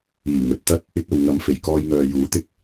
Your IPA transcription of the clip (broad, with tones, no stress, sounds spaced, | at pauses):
iː˨˩ ŋ ɵ˨ t̚ t̪ ɐ˥ t̚ | ɪ˧ k̚ ɐ˨ w ŋ ɐ˨˧ m f e˨˩ j k ɔː˧ j ŋ œː˨ j uː˨˥ t̪ ɪ˧ k̚